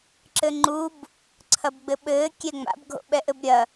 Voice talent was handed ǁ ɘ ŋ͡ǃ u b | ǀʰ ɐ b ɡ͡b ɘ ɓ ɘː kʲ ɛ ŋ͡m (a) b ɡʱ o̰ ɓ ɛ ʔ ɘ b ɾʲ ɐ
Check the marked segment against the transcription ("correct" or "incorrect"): incorrect